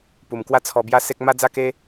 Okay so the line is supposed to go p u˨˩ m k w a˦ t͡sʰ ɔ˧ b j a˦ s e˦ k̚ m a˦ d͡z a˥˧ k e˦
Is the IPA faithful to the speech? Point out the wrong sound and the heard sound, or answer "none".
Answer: none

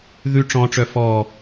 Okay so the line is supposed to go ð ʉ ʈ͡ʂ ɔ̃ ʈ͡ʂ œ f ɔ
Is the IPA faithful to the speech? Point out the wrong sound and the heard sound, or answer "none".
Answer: none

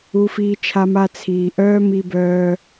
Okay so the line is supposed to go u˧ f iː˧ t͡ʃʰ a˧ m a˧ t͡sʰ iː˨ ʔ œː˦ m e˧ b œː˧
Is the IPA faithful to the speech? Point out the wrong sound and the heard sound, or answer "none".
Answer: e˧ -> i˧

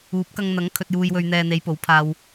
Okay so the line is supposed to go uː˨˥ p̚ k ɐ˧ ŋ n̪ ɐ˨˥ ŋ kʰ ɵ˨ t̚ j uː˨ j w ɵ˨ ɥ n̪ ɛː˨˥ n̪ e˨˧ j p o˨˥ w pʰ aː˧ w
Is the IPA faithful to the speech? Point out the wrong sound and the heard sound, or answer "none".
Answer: ɛː˨˥ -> ɛː˨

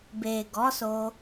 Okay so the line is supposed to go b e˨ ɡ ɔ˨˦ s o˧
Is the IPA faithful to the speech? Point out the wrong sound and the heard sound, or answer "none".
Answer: none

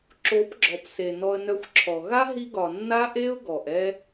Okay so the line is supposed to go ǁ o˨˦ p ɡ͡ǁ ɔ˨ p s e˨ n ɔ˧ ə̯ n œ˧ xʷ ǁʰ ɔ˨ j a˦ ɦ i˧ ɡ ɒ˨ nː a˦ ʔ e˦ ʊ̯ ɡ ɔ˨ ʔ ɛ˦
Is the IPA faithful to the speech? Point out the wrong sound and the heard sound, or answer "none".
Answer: j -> ɣ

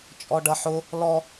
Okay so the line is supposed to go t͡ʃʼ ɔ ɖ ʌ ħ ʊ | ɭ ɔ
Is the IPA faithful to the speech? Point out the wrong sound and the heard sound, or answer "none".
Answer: ɭ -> l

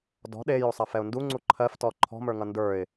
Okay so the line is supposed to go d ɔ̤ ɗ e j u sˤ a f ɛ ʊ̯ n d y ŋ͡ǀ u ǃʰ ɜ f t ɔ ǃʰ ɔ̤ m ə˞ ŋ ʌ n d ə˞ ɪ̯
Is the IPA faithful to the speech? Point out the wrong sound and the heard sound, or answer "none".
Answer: y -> u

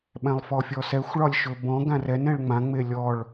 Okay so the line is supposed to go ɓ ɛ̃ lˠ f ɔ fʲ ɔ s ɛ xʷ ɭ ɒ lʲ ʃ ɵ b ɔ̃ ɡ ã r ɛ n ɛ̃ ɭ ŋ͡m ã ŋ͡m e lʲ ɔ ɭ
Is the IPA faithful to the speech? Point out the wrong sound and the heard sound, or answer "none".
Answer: none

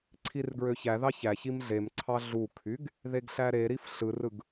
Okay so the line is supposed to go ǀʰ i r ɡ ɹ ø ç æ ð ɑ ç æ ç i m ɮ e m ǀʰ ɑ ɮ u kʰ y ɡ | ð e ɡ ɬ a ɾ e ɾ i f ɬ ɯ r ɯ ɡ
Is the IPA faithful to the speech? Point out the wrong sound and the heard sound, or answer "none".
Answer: a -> æ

